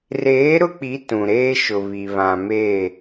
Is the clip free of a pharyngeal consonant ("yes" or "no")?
yes